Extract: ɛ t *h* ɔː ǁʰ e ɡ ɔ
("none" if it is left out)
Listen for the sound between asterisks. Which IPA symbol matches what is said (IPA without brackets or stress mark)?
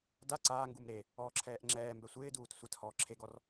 h